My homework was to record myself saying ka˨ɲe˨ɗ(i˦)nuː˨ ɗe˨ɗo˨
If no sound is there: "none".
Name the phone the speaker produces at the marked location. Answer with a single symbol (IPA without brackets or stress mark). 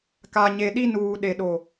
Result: i˦